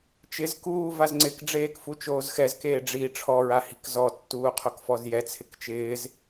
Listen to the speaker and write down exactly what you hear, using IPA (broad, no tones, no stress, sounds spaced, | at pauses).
t͡ʃ ɪ z k uː v a z ŋ͡ǀ ɪ k ɖ͡ʐ eː k f u t͡ʃ oː z x ɛ z k eː ɖ͡ʐ i ʈ͡ʂʰ ɔ ɹ a h i̤ k z ɔ tː uː qʰ o k f ɔ z j ɛ t͡sʰ ɪ k t͡ʃ ɪː z